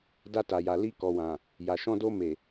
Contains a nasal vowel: yes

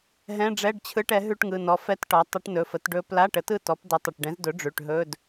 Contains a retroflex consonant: yes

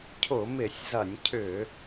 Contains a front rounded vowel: yes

